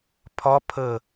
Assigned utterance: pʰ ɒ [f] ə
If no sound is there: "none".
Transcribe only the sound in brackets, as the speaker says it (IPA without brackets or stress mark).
pʰ